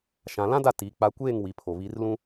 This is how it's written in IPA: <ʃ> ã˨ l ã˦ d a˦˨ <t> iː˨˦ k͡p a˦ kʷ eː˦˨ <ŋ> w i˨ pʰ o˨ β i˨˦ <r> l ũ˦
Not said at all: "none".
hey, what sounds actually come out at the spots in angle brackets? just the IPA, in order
ʃ, t, ŋ, r

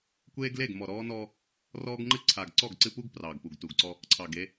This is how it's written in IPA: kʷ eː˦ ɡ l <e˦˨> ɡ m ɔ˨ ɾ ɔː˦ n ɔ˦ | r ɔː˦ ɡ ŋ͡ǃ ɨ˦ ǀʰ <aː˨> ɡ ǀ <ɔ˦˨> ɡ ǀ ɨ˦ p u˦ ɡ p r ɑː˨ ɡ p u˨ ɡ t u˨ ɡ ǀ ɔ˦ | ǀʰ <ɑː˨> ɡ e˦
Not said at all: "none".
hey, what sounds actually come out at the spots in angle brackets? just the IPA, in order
e˦˨, a˨, ɔ˦˨, ɑ˨

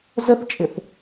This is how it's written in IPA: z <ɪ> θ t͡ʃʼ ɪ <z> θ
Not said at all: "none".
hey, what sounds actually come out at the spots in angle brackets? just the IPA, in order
ə, none

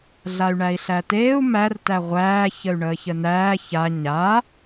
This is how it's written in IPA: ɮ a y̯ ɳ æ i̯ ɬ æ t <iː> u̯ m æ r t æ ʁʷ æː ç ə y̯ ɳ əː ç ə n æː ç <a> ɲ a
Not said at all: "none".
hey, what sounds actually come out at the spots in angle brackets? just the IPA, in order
eː, a

